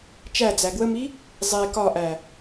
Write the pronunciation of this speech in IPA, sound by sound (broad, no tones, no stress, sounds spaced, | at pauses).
t͡ʃ æ d͡z æ ɡ w ə m i | zˤ e k ɒ ʔ æ